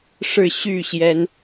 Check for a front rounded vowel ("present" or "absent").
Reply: present